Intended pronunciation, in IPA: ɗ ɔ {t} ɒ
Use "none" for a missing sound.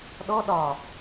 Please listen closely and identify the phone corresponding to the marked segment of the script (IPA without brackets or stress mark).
ɗ